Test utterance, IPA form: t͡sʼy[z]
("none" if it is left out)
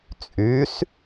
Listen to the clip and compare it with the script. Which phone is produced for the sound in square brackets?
s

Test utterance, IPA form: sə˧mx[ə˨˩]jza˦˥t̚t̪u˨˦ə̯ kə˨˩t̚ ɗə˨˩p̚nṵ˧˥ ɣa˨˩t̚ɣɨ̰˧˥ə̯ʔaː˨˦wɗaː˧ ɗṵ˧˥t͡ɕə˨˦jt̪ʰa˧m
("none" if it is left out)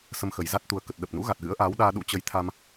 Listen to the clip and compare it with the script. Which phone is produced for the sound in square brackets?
ə˨˩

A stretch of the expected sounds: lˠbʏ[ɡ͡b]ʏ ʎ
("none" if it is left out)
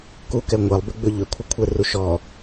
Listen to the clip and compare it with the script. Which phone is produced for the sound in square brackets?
ɡ͡b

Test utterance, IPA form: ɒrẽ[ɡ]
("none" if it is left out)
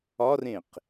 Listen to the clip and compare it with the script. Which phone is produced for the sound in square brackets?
q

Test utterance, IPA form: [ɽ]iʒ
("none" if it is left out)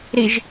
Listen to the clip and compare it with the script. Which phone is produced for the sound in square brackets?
ɾ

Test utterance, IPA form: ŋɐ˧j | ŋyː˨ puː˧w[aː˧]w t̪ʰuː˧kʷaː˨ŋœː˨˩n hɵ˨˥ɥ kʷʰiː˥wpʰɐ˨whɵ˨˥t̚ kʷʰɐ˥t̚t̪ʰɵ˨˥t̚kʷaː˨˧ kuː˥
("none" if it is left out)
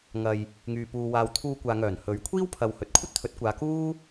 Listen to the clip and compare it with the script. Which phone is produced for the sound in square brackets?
aː˧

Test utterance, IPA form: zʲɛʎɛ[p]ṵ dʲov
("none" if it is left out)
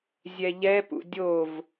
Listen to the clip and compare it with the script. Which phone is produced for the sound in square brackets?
p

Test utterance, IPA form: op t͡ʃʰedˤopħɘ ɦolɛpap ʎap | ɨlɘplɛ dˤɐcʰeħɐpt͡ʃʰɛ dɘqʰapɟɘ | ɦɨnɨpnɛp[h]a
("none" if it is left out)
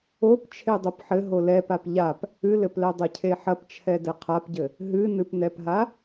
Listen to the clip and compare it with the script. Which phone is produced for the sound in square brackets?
ɦ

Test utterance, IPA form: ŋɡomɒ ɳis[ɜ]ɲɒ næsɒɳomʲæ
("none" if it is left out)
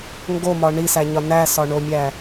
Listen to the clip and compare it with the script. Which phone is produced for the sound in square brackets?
æ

